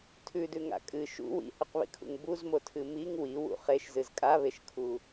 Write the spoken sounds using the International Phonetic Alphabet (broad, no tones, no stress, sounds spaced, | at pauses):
tʰ ʉ d ʉ ŋ a̰ kʼ ɨ ʃ ṵ w ḭ h ʉ q β ḭ kʰ ṵ ŋ b u z m o tʰ ɨ m i ŋ w i w ṵ χ e ʃ z ɨ z kʼ a β e ʃ kʰ u